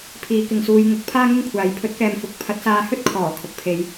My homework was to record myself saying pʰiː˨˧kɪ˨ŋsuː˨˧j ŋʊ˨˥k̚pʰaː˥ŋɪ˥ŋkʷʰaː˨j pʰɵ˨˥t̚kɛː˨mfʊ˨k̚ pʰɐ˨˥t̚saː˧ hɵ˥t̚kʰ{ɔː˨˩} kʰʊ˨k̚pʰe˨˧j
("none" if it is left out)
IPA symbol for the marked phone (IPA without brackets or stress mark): ɔː˨˩